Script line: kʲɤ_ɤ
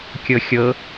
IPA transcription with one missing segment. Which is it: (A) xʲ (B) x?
A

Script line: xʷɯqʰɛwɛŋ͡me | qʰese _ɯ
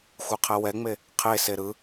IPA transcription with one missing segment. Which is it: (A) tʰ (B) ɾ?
B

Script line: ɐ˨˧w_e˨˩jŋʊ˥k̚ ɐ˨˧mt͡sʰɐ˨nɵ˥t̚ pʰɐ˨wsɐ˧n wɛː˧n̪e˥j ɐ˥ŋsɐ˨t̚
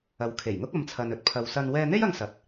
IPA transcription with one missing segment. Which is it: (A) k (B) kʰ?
B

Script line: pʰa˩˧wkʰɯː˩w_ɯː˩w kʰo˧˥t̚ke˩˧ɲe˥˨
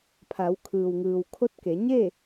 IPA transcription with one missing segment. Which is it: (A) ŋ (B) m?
A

